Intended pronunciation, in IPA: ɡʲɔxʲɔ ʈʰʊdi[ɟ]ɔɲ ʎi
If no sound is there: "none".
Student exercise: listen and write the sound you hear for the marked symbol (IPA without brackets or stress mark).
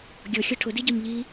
ɟ